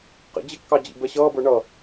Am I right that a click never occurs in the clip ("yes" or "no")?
yes